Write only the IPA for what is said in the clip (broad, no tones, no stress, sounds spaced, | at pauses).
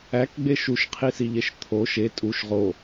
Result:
æ k ɡ͡b e ʃ u ʃ qʰ i s i ʎ e ʃ t̪ʰ o ʃ e tʼ u ʃ ʁ o